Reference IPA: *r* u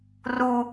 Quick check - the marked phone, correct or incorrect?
correct